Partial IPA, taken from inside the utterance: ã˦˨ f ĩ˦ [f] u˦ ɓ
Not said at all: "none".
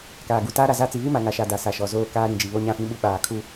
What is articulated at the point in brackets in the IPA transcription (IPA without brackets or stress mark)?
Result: ɓ